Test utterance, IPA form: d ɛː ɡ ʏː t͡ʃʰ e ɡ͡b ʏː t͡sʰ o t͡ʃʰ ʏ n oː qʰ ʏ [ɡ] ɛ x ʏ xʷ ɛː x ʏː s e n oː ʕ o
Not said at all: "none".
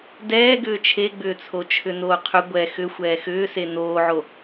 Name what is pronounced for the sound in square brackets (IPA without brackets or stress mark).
ɡʷ